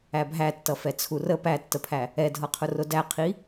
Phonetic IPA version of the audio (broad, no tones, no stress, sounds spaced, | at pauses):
æ bʱ æ tː ʌ f ɛ t͡sʰ u r ə p æ tː ə pʰ æ | ɛ dʱ ʌ qʰ ʊ r ʊ d æ qʰ i